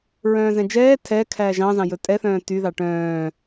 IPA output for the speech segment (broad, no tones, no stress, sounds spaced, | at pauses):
ɹ œ̃ː z ɛ̃ d͡ʒ ɛː tʰ ɛ kʰ æː ʒ ɑ̃ z ɑ̃ j ɵ tʼ ɛ θ œ̃ː t y ð ɑ ʈ œ̃ː